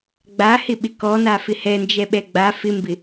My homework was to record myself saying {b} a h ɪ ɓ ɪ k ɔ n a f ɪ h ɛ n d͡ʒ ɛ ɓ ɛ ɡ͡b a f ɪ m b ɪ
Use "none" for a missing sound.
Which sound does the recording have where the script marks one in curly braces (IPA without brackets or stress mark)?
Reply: ɡ͡b